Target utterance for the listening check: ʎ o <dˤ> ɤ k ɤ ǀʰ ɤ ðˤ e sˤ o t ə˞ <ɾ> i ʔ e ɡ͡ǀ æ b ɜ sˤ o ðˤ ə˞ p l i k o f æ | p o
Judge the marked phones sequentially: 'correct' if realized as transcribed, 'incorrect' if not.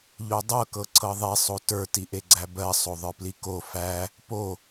correct, incorrect: t

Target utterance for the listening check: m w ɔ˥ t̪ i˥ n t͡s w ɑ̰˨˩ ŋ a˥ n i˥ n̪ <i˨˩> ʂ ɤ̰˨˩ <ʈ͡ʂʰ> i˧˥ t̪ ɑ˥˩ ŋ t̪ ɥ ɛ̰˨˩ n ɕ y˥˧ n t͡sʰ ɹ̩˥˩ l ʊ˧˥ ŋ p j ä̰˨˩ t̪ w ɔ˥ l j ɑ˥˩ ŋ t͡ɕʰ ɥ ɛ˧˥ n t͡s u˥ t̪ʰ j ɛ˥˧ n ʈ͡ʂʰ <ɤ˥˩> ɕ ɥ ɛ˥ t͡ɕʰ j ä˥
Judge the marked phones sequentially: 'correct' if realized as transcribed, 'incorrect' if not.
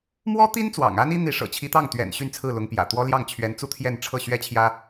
incorrect: i˧˥, incorrect: t͡ɕʰ, correct

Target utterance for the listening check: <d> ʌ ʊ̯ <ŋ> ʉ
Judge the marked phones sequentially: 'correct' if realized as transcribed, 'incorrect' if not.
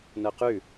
incorrect: n, incorrect: q

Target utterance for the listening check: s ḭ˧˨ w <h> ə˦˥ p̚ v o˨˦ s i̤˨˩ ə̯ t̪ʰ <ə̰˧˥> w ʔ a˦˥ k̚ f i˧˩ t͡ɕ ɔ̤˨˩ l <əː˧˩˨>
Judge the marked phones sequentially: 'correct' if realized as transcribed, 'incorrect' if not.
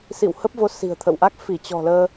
correct, incorrect: ə̰˧˨, incorrect: əː˧

